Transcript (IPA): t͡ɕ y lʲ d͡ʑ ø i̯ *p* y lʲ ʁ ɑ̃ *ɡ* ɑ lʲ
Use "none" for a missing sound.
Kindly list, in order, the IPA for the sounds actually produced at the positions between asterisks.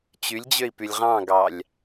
p, ɡ

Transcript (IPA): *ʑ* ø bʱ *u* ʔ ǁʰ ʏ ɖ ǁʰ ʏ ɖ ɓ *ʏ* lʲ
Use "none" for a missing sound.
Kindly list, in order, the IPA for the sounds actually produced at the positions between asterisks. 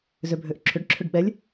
z, ø, ɛ

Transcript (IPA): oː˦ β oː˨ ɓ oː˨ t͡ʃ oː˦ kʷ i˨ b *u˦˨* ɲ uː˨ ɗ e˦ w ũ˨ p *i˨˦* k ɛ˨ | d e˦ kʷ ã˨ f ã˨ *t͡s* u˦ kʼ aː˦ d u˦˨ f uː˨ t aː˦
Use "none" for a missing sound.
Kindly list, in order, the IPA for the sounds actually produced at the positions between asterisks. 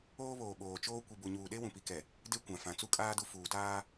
u˨, i˨, t͡s

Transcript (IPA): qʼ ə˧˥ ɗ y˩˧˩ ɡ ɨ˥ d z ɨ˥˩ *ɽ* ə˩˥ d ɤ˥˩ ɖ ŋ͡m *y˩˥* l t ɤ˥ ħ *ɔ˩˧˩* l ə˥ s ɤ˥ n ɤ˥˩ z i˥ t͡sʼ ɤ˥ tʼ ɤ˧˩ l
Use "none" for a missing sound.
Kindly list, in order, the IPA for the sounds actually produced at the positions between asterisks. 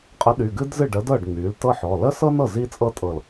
ɖ, y˩˥, ɔ˩˧˩

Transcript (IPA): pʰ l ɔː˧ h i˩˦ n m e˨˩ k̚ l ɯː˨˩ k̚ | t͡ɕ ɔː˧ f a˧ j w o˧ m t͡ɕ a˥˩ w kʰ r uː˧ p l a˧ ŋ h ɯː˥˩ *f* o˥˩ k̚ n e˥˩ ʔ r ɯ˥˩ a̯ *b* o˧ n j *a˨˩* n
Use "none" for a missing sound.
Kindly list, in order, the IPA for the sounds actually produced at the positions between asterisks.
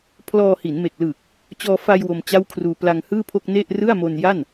pʰ, m, a˥˩

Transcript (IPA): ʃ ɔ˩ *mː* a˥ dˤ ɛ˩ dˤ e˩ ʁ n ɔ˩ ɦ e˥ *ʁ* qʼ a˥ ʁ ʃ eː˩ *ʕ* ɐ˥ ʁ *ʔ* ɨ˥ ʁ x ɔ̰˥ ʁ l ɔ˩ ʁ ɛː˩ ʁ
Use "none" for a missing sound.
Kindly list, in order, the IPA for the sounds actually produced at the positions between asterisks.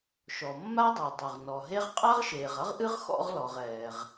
mː, ʁ, ʁ, ʔ

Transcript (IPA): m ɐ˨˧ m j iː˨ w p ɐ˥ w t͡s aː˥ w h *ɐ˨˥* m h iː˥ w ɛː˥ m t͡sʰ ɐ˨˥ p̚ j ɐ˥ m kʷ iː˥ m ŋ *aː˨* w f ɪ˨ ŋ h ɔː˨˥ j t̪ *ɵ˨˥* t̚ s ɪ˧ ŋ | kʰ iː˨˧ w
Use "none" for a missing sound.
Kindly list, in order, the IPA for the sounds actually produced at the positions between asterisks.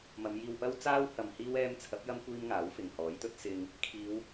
ɐ˧, aː˨˥, ɵ˧

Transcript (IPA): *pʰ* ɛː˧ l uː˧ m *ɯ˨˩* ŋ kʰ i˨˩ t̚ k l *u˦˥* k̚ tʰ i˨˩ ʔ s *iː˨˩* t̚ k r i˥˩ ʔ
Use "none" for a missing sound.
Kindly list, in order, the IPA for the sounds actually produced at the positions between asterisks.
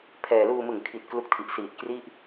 pʰ, ɯ˨˩, u˦˥, iː˨˩

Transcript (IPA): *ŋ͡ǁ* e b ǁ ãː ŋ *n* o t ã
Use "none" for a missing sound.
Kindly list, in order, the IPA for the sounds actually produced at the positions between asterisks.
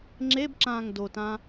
ŋ͡ǁ, d

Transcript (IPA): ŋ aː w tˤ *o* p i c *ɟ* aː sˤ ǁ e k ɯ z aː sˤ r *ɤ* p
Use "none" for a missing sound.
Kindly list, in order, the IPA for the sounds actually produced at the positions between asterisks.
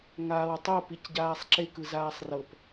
o, ɟ, ɤ

